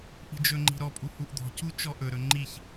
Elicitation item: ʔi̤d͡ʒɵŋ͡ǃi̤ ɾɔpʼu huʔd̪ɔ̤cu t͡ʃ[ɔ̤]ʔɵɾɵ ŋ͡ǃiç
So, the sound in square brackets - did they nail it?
no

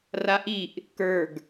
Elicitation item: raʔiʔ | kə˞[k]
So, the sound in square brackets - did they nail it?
no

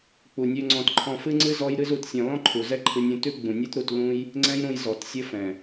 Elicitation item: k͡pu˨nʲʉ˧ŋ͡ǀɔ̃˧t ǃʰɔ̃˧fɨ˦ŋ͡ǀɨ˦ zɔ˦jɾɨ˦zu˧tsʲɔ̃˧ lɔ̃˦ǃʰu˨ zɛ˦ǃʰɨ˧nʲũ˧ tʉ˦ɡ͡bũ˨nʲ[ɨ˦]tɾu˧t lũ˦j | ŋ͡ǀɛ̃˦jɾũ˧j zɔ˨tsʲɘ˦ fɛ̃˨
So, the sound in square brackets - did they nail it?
yes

